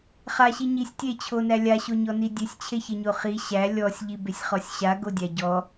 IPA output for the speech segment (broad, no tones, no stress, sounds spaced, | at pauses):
χ a ɕ i ɲ i sʲ tʲ e t͡ɕʰ o n æ lʲ a ɕ o ɲ ɔ n i dʲ e sʲ t͡ɕʰ e ç e ɲ o χ i ɕ æ lʲ ɔ sʲ ʎ i b e sʲ χ ɔ sʲ ɕ a ɡ o dʲ æ ɟ ɔ